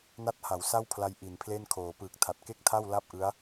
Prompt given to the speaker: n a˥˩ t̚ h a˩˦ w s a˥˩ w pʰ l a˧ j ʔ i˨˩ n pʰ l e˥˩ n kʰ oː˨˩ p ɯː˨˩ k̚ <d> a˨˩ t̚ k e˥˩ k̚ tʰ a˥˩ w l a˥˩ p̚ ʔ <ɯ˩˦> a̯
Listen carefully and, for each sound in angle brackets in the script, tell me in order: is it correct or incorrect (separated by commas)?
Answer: incorrect, incorrect